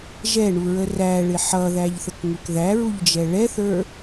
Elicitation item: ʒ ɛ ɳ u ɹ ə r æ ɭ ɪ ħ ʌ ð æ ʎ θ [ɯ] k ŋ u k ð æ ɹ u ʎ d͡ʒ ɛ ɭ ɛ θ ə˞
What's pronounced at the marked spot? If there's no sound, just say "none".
ə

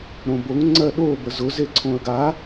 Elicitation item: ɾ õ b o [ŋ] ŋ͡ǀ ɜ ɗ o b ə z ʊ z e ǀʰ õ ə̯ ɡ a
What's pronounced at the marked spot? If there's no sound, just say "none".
ŋ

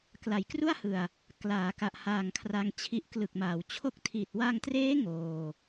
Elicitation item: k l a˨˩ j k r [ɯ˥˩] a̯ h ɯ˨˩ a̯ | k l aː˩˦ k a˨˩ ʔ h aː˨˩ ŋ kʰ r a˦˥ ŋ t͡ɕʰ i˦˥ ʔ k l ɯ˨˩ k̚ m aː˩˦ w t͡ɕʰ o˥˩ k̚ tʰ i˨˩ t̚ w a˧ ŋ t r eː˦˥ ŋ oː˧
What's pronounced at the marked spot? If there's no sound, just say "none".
u˥˩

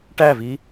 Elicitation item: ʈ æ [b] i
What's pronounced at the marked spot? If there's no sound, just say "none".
v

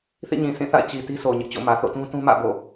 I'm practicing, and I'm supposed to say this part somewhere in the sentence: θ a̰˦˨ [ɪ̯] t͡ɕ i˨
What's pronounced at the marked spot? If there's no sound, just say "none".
ɪ̯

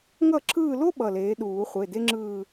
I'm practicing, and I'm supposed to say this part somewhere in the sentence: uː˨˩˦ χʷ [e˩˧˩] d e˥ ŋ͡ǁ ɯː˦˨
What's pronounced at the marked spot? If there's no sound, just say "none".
e˩˧˩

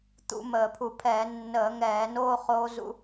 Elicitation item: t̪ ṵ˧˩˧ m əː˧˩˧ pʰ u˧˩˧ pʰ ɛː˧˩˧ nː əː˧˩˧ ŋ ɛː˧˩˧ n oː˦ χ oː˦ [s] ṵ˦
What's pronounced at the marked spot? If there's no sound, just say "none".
z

